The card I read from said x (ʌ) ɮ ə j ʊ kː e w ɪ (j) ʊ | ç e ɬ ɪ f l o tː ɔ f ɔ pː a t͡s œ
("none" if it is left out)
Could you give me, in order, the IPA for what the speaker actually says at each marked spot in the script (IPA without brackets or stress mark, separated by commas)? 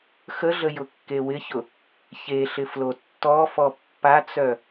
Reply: ə, ç